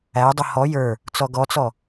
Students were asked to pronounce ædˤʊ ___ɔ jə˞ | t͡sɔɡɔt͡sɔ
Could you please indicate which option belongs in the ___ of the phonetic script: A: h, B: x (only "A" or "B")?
A